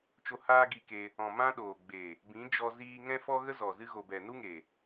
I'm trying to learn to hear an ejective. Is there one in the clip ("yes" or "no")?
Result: no